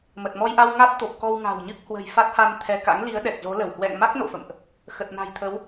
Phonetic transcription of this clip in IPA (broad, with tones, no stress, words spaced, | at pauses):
mə˨˩t̚mɔ˧jʔa˧w ŋa˦˥t̚t̪o˨˩p̚ kɔ˧wŋa̤˨˩wɲɨ˦˥k̚ hwə̤˨˩j fa˦˥t̚ha˧n t̪ʰɛ˧ ka̰˧˥ŋli˨˦ə̯ ɗɛ˨˩k̚zo˨˦lə˧˩w hwɛ̰˧˨ŋma˦˥k̚ no̰˧˨fə̰˧˨mʔ | xə˨˩t̚na̤˨˩jt̪ʰə˨˦w